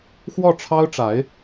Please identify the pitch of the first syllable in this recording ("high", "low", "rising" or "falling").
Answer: falling